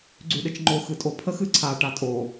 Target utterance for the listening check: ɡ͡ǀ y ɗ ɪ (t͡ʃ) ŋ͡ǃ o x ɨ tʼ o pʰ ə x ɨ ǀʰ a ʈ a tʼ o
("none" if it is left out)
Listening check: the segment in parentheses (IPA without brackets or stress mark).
t͡ʃ